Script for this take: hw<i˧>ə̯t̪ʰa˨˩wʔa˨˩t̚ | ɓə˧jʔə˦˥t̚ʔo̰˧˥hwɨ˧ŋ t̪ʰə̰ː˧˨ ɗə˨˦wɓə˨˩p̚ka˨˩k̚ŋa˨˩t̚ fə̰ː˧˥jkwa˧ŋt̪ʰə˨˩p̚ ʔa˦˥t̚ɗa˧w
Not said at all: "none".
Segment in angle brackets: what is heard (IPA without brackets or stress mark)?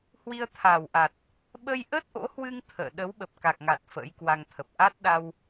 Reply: i˧